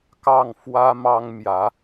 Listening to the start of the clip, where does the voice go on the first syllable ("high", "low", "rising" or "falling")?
falling